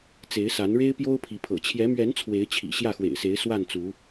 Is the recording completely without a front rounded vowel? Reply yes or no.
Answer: yes